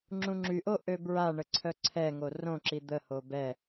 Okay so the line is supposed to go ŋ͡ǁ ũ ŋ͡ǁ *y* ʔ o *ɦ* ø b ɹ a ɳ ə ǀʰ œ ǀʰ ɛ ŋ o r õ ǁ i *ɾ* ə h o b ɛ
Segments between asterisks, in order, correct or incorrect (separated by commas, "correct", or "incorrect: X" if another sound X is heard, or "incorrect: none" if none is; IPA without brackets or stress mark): correct, incorrect: ʔ, incorrect: d̪